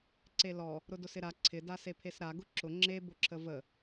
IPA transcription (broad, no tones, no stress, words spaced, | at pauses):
ǀelɔ | ɾʊdʊsɪɾa ǀʰɪ dasepʰesɾa ɡʊǁʊ ŋ͡ǁe bʊǁʰəvə